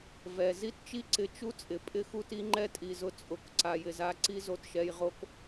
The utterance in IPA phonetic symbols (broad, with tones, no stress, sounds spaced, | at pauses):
v ɛ˨ z i˦ t t͡ʃ i˦ ǀ ɪ˧ t͡ʃ u˦ t͡sʼ ɪ˨ pʼ ɪ˦ x u˧ t i˦ ŋ͡ǃ ɛ˦ tʼ i˨ z ʊ˧ t͡sʼ ʊ˨ k ǀ a˨ j ɪ˨ z a˧ ǀ i˦ z o˧ t ʃ ɛ˧ j ʁ o˦ k